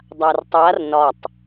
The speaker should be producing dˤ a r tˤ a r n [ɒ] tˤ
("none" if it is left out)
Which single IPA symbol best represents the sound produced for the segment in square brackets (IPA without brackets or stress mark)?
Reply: ɒ